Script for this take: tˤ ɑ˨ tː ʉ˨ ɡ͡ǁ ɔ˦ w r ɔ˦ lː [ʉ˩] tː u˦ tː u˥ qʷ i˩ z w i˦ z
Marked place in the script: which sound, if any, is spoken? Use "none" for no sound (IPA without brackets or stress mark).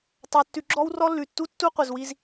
ʉ˩